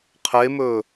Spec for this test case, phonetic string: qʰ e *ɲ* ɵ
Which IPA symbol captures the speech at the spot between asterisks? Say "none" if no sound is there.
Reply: m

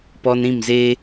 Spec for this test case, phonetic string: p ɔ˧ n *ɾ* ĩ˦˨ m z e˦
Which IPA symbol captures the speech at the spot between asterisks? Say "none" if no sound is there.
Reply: ɾ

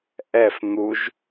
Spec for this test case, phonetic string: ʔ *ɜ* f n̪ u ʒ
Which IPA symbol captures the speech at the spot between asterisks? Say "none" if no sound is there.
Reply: ɛ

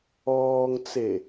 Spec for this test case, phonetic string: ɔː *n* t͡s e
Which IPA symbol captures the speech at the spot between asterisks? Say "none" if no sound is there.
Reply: ŋ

